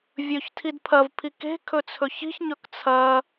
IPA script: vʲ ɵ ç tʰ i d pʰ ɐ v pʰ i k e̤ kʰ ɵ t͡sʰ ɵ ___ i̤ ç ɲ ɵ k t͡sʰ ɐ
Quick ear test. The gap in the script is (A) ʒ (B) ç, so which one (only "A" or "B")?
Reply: B